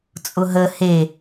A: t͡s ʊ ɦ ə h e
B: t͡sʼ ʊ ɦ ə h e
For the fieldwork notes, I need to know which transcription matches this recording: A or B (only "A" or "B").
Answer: B